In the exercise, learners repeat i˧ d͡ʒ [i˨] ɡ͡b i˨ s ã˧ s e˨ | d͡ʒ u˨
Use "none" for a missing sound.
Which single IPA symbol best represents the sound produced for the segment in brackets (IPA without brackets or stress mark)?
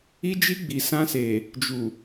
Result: i˧